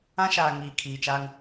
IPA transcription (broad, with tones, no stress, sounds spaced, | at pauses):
ã˦ ʃ aː˨ ŋ iː˨ kʰ iː˨ t͡ʃ aː˦ ŋ